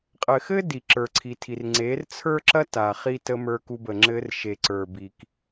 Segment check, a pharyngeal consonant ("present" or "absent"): absent